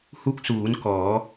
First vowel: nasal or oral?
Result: oral